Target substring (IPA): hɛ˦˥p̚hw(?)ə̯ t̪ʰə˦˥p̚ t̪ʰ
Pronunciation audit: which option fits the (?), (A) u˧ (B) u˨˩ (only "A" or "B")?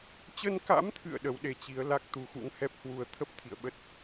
A